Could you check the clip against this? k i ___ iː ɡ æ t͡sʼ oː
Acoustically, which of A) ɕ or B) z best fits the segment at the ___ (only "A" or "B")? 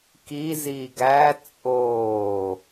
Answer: B